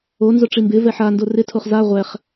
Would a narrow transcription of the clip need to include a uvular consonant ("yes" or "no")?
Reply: yes